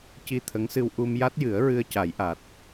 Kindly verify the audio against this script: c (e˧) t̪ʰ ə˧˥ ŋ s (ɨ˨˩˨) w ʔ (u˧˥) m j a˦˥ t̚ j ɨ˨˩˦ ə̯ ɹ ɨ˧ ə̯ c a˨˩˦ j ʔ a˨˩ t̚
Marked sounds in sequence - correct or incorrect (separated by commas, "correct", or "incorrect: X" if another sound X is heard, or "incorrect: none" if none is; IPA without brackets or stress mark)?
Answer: incorrect: i˧, incorrect: ɨ˧, incorrect: u˧